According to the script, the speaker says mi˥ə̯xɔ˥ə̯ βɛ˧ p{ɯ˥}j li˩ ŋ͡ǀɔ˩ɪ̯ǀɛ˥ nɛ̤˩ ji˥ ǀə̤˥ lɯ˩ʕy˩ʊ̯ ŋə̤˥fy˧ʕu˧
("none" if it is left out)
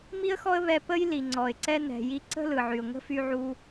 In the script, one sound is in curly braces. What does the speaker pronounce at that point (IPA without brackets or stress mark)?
ə˥